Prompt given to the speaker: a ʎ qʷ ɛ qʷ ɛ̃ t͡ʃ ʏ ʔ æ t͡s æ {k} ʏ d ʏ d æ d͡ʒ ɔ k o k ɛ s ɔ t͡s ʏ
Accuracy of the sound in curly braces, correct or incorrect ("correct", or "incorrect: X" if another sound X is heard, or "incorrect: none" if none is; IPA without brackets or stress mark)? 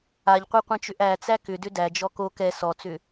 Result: correct